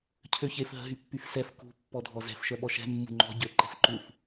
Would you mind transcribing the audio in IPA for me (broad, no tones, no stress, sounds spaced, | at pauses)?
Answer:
cʰ ø ç e f ɦ ə̤ ɦ y pː y f s ɛ f k ṳ pː ɔ dʱ ɔ z ɛ̤ f ʃ œ ɓ ɔ ʃ ɛ̤ mː ṳ ŋ͡ǃ ɔ̤ ɟ ø ǃ ɛ̤ f ǃ u f